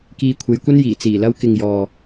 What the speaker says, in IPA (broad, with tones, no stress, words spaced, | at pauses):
kiː˧kʷʰe˨˧jkʷɐ˥njiː˨˩ t͡siː˨˩lɐ˧wkɪ˨ŋjɔː˨